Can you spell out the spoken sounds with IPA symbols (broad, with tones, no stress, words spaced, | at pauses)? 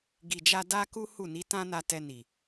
ɡi˨d͡ʒa˧ da˦ku˦ hu˦˨ni˨˦tã˦ na˧ tɛ˧ni˨